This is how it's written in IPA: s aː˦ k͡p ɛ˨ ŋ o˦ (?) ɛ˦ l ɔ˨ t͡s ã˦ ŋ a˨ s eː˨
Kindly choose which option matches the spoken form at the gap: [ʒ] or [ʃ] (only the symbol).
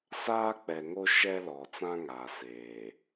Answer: ʃ